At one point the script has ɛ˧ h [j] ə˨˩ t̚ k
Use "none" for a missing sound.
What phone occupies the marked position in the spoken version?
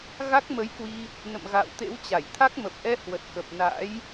w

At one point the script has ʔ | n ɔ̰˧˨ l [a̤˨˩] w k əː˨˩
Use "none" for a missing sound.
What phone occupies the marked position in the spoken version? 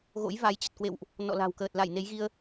a̤˨˩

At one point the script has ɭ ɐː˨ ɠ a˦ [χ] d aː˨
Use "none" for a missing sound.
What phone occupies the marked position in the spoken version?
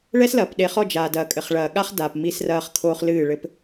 χ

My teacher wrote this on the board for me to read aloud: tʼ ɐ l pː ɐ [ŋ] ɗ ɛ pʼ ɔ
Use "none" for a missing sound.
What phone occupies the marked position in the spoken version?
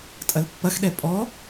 x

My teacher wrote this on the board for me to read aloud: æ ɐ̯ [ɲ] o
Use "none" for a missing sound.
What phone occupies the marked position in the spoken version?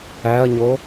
ɲ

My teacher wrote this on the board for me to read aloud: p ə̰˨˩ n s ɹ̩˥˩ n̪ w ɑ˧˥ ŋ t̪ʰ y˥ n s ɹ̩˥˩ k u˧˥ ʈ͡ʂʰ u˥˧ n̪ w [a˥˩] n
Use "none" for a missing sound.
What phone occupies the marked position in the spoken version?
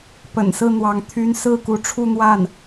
a˥˩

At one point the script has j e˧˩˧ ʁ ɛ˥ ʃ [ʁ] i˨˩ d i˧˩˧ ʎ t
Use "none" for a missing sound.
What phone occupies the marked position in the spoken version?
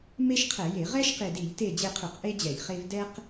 q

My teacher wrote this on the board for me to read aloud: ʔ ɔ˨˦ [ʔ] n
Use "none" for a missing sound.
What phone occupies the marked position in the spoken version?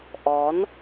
none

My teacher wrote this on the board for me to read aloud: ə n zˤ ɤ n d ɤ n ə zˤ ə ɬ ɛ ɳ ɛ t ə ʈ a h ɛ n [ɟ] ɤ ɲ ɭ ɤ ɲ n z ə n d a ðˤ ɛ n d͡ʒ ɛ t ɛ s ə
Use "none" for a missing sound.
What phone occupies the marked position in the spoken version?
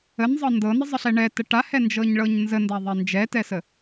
d͡ʒ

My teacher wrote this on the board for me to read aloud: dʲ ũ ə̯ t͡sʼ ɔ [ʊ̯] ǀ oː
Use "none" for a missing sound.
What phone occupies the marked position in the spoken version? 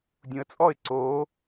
ɪ̯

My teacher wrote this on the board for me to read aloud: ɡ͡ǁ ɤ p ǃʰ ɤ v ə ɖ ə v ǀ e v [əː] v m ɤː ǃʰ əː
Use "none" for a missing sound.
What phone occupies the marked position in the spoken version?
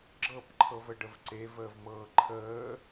əː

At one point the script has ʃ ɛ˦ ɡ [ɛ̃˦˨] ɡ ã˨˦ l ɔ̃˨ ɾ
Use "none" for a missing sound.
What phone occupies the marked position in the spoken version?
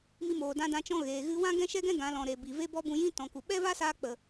ɛ̃˦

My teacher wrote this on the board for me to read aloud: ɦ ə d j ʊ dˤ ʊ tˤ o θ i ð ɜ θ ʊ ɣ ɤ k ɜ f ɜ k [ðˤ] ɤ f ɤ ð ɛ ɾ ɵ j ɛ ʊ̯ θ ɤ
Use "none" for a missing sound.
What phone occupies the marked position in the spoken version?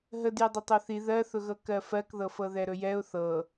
ð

